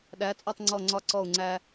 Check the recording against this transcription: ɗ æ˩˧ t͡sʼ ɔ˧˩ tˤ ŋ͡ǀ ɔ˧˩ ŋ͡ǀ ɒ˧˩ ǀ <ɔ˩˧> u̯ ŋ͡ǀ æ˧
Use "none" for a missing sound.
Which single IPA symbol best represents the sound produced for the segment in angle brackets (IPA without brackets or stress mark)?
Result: ɔ˧˩